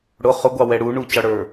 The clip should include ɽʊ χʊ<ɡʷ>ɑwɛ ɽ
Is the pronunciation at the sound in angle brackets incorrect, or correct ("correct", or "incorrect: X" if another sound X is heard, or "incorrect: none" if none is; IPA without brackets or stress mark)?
correct